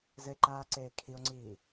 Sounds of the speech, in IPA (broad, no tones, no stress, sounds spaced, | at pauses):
z ɘ e̯ ǃ aː ǀ eː kʰ i o̯ ŋ͡ǀ iː